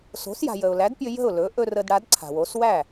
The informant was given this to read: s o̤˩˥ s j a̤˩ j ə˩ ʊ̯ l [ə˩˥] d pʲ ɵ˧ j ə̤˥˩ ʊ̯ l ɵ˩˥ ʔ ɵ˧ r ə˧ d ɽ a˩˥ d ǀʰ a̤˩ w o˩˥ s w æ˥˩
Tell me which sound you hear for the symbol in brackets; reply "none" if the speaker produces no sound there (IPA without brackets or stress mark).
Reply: æ˩˥